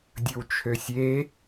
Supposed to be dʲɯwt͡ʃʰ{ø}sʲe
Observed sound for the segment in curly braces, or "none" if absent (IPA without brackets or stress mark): ø